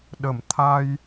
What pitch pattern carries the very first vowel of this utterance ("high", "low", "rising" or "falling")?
low